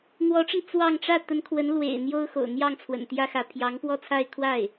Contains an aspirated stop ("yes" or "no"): yes